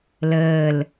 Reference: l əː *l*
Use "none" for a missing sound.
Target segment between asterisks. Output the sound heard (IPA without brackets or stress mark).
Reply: l